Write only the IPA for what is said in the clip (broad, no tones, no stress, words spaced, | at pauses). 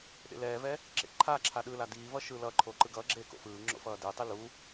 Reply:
ɗḛlɛːvɛ | ǁḛǃʰaǁʰa ɗɯla diːvʌ ʃɯːlʌǃʰoː ǃɯɡʌːɡ͡ǁeː ko̰fɯːŋ͡ǁo̰ fʌːdɯtˤi lu